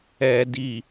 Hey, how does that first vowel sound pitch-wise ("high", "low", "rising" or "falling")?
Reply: low